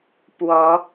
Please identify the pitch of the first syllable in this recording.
rising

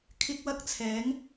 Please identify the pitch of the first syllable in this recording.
high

